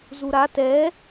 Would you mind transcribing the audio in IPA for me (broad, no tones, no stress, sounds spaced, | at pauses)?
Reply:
z u ɾ a t ɛ